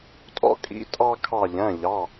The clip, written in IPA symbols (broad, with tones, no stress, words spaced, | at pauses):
tʼɔ̰˧kʼḭ˩˧˩ tʼɑ˧ kʰɑ˧˩ʎæ̃˩˧˩ʎɑ˩˧˩